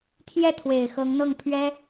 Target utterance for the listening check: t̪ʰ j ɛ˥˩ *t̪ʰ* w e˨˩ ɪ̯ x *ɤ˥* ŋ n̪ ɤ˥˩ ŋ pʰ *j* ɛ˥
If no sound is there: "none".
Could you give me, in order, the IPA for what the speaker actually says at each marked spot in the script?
t̪ʰ, ɤ˧˥, ɥ

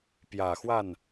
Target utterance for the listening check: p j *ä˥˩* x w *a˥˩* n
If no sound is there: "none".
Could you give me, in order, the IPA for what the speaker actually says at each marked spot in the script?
ä˨˩, a˥˩

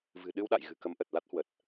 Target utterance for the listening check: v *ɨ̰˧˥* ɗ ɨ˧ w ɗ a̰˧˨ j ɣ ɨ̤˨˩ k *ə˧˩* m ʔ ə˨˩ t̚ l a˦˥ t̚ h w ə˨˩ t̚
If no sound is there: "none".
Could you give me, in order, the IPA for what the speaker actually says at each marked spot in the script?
ɨ̤˨˩, ə˨˦

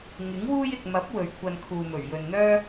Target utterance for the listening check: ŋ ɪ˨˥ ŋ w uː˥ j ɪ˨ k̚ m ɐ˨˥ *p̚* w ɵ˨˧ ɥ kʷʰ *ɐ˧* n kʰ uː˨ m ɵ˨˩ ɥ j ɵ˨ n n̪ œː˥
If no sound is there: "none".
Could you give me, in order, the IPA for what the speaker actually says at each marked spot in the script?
p̚, ɐ˧

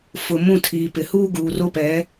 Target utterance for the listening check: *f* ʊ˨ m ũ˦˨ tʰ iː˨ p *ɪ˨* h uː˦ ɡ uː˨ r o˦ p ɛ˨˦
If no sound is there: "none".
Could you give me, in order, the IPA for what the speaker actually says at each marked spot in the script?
f, ɪ˨

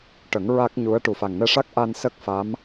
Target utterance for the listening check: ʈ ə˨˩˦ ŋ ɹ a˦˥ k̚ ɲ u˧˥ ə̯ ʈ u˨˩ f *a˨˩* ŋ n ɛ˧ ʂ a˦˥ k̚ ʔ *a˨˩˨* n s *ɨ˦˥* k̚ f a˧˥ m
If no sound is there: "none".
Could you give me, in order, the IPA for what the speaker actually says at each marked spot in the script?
a˨˩, a˧, ə˦˥

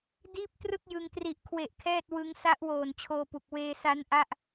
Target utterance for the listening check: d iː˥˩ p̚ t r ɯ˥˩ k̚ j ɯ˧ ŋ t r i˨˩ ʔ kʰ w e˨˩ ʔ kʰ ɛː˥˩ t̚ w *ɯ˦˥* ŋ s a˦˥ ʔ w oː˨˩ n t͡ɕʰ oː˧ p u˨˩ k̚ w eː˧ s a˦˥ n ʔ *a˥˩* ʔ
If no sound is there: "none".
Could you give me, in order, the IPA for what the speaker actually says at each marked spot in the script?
ɯ˦˥, a˥˩

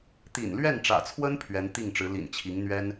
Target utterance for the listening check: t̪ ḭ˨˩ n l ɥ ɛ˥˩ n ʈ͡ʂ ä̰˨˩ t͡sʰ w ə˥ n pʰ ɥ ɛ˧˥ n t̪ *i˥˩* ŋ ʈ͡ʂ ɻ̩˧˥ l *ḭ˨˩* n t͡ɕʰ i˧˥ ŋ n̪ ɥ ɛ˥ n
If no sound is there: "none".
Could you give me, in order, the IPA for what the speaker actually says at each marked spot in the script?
i˥˩, ḭ˨˩

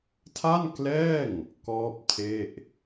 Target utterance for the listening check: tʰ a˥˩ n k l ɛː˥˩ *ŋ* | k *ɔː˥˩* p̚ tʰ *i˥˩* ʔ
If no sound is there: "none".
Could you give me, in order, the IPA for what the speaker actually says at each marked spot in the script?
ŋ, ɔː˥˩, e˥˩

